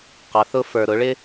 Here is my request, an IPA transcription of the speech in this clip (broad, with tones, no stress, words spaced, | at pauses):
qɑ˩˧θʊ˧ fə˞˩ɾʊ˩˧ɭɪ˧